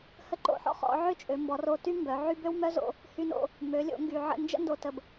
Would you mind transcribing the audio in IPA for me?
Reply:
h ə˧ ǃ o̰˧ ħ ɔ̰˥ χ ɔ̰˩˧ ʕ ø˥ t͡ʃʼ ø˩˧ m b ɔ˩˧ r o˧ t y˥ m b œ˩˧ ʕ y˥ b ø˥ w m œ˥ z o̰˧ | h y˧ n o̰˧ | m ø˩˧ lʲ o̰˩˧ ŋ ɡ y˩ ʕ ə̰˧ n d͡ʒ ə̰˥ n d o˩˧ t ə˩ b

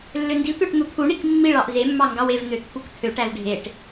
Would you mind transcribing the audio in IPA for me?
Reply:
lː ø n d i tʷ ɑ ʈ n̪ u t̪ʰ u ɳ i k mː i ɭ ɑ ʔ z e mː ɑ ŋ ɡ ɑ w e v n̪ ø t̪ʰ u k t̪ʰ ø ʈ æ v ɖʱ e ʈ

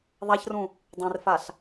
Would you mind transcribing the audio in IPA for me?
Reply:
ðˤ a ç r ũ | dˤ ẽ r f a ɬ

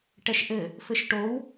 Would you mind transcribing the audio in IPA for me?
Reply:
ʈ ɛ ʃ ʔ ɘ | f ɘ ʃ ʈ o w

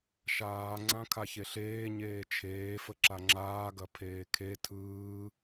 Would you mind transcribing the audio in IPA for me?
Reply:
ʃ aː ŋ͡ǀ ã kʰ a ç e ɬ eː ɲ eː t͡ʃʰ eː f ə ǁ a ŋ͡ǁ aː ɡ ɐ pʰ eː kʰ e tʰ ɯː

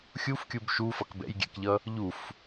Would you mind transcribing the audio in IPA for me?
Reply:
xʲ u f kʲ u b ʃ u f ʌ k b ɛ̰ j ɡʲ ɛ̰ k ʎ ʌ | ʎ u f

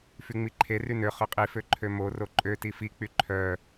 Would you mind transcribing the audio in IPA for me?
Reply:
f y ŋ͡m i ǃʰ e r y n ø χ ø qʼ i f ø ǃʰ ø m o r o ǃʼ ø t i f i k͡p y ǃʰ œ

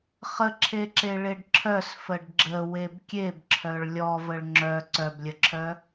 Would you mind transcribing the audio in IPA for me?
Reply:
χ ə ǁʰ e ǁ e ɭ e ɖ ǁʰ œ s f ə ɖ ɡ͡ǁ ə w e b kʲ e b ǁʰ œ ɭ lʲ ɔ v ə ɭ ŋ͡ǁ œ ǀ œ b lʲ ə ǁʰ œ

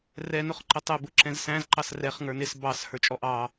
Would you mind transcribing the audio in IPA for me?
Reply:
r ɛ n ʊ χ ǃ ə tˤ ɛ b ʊ ǁ ɛ̃ z s æ̃ z ǃ ɑ s r ɛ χ ŋ ə˞ n ɪ s b ɑ s h ə˞ t͡ʃʼ ɔ ʔ ɑ

